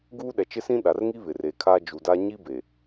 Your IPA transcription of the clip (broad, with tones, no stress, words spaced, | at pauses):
ɡuː˦ɗɛ˨ t͡ʃɪ˦sĩ˦ ɗa˨rŋi˦ βɪ˨reː˨kʰaː˦ d͡ʒu˨da˦ ɲi˦ be˨